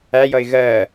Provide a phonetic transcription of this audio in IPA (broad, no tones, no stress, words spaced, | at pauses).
æjʌɪ̯ ɣɜ